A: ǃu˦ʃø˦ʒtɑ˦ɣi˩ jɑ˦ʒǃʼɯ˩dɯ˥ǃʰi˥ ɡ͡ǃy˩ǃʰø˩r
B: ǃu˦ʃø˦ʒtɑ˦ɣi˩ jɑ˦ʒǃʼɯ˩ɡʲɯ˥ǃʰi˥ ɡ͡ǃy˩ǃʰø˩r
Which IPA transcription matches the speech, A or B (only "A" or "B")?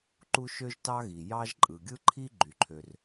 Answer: B